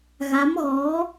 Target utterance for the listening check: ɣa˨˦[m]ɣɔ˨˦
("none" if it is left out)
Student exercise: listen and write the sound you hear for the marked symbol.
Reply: m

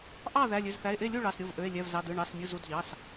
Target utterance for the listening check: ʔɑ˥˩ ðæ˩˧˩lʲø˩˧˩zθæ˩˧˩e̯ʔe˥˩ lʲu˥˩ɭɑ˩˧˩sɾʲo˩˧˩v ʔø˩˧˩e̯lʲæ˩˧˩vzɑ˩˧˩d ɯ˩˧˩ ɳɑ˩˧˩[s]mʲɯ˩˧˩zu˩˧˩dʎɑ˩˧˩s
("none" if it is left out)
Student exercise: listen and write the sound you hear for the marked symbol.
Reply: s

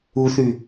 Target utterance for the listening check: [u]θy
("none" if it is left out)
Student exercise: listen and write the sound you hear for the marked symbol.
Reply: u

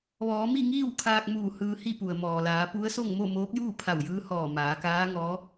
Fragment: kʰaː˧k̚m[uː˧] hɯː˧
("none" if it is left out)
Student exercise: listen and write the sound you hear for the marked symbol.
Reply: uː˧˩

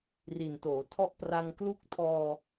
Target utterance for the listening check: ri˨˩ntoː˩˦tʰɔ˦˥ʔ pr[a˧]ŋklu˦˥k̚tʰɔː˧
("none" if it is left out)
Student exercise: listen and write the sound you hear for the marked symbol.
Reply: a˧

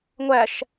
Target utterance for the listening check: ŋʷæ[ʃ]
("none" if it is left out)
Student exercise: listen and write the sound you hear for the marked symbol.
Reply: ʃ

